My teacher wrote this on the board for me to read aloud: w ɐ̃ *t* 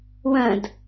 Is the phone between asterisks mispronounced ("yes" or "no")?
yes